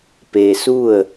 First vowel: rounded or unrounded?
unrounded